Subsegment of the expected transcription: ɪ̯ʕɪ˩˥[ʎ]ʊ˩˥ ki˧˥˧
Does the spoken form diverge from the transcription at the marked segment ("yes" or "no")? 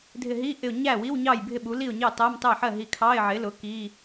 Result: yes